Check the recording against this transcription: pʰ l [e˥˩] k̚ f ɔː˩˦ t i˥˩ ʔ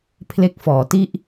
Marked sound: incorrect: e˦˥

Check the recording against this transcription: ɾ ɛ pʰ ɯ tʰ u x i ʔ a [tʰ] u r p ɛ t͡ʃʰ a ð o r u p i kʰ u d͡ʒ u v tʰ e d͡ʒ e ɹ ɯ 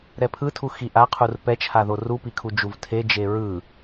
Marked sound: incorrect: qʰ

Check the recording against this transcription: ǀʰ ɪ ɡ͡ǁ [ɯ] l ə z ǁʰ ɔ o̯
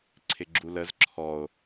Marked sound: incorrect: u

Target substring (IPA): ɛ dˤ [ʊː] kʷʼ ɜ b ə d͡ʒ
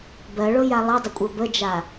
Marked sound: incorrect: ʊ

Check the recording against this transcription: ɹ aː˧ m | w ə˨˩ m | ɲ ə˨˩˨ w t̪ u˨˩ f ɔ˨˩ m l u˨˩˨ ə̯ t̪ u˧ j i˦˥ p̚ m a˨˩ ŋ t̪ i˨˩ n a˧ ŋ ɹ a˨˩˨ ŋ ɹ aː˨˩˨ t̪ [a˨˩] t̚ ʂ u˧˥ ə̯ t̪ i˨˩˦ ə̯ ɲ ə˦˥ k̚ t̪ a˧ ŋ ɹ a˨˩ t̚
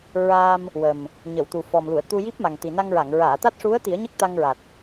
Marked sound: incorrect: a˦˥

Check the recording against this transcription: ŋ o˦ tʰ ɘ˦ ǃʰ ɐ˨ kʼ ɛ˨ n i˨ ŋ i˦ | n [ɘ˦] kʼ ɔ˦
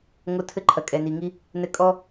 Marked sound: correct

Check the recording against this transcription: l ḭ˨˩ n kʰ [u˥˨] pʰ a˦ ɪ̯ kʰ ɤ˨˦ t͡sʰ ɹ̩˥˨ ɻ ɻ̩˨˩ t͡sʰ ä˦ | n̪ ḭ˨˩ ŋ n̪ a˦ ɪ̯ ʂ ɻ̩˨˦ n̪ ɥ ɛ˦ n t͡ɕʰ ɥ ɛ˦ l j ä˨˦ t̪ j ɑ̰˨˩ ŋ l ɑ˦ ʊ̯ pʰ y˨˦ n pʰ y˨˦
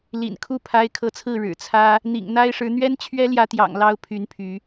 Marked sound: correct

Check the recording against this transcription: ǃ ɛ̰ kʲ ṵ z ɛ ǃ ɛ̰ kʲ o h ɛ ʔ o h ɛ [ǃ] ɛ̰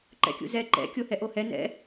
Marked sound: incorrect: n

